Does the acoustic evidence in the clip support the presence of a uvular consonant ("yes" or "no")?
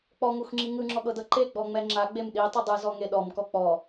no